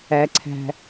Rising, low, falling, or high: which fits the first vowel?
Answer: low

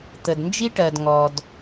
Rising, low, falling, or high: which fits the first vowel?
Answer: low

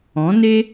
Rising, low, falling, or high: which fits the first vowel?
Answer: rising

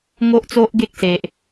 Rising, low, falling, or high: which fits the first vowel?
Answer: high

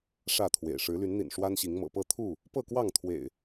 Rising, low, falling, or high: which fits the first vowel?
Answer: falling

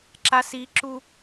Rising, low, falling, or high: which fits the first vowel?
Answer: low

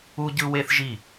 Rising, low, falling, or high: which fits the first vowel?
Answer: high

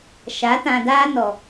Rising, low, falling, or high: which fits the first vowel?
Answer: rising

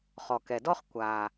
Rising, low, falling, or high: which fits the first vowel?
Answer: low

